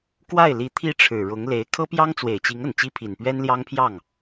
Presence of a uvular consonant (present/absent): absent